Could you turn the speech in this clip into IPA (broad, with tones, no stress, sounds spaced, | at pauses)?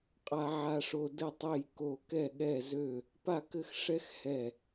qʼ a˦ ʕ a˦ ʂ o˦ d ɘ˦˨ tˤ e˦˨ j k o˦˨ k ɛ˦˨ ɠ ɛ˦˨ z ø˦˨ | p a˦˨ k ɘ˦˨ x ʂ ɛ˦ x h ɛ˦˨